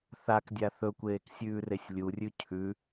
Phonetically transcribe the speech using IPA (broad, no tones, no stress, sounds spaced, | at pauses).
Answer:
θ a k dʲ a θ ɵ kʷ eː k sʲ ʉː r e sʲ lʲ u rʲ ʉ cʰ ʉ